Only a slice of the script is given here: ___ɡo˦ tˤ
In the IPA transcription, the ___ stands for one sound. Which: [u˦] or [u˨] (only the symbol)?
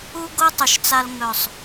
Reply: u˦